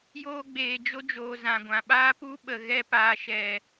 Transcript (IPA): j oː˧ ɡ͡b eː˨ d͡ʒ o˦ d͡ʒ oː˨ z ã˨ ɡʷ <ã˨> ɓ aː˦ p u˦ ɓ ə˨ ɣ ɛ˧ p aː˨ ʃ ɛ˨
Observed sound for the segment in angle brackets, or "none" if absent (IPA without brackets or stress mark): ã˨